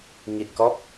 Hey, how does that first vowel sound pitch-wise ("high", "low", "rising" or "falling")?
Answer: low